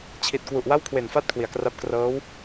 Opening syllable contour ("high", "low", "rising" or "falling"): low